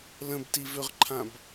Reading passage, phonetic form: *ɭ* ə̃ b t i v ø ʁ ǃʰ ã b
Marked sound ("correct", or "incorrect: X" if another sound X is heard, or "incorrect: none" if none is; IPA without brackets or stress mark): incorrect: l